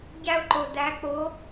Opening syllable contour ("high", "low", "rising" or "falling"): high